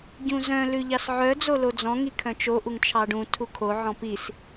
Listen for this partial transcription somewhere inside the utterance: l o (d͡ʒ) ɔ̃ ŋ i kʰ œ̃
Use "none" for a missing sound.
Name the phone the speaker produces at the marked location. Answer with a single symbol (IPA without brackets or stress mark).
d͡z